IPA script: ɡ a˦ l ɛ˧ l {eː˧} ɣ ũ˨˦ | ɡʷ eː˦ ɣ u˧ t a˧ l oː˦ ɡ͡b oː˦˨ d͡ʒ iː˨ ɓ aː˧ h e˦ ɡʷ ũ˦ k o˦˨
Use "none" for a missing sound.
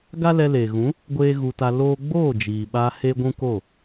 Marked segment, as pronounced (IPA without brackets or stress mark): eː˨